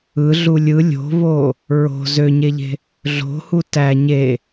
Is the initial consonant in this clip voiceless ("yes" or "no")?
no